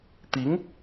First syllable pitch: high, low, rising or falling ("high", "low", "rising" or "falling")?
rising